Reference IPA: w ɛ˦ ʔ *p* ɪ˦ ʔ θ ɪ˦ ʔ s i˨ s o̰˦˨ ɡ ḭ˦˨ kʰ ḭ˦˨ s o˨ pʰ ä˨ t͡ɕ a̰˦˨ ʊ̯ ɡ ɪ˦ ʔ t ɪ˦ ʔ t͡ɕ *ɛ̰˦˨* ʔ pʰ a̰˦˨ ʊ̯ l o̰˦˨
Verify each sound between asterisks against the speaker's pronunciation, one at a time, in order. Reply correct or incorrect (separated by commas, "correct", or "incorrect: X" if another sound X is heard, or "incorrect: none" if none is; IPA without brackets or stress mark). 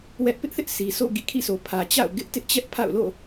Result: correct, incorrect: ɛ˦